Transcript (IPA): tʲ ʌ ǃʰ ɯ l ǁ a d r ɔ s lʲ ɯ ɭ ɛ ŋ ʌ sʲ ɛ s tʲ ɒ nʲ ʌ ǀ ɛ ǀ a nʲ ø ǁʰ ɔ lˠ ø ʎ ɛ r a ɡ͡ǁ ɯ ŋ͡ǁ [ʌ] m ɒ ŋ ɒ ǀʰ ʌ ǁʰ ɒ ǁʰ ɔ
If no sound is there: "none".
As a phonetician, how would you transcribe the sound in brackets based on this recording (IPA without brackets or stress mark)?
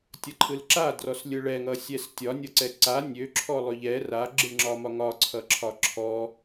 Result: ɒ